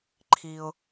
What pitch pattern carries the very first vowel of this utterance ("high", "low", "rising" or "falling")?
low